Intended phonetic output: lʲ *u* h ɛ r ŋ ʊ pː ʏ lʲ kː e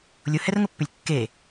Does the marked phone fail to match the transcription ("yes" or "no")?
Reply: yes